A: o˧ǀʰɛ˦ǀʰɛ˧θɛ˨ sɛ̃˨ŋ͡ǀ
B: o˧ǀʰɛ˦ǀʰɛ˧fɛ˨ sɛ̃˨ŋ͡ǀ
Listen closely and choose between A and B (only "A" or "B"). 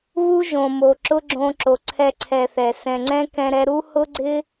A